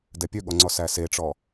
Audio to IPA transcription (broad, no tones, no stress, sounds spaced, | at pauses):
d ɛ pʲ ø ɠ ɔ ŋ͡ǀ ɔ s æ s e ʈ͡ʂ ɔ